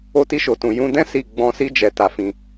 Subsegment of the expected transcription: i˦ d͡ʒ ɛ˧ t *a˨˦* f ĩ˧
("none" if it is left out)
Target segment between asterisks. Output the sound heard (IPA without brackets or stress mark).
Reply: a˧